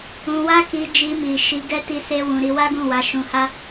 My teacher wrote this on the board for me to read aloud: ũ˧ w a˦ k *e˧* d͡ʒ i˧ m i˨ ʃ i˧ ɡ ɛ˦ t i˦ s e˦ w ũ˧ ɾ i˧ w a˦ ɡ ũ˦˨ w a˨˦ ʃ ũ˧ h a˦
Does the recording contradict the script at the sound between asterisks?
yes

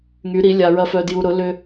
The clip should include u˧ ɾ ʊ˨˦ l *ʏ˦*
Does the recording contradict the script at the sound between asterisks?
no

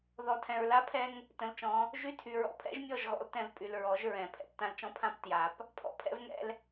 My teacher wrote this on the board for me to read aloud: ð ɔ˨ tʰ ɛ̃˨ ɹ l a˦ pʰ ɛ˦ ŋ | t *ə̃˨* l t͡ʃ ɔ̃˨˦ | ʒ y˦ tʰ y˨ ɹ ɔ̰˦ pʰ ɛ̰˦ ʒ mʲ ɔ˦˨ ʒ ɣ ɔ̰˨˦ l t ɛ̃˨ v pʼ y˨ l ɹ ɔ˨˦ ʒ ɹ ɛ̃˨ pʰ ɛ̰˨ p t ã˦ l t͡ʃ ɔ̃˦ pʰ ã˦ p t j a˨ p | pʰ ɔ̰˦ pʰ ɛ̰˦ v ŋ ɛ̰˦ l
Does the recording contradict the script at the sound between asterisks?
no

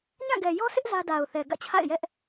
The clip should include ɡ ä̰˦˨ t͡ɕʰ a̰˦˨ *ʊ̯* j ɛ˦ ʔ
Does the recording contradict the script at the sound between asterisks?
yes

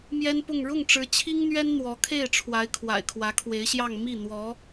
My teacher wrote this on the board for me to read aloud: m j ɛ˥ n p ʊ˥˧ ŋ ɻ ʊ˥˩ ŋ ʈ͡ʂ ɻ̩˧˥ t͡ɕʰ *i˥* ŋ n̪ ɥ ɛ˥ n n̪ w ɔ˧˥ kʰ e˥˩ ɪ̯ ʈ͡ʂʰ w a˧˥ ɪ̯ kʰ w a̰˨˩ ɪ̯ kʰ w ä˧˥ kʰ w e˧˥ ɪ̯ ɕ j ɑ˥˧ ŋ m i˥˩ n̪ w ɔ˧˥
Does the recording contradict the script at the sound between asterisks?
no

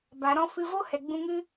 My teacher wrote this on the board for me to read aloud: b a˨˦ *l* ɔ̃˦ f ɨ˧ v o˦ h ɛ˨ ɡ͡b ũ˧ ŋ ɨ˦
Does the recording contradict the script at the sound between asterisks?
yes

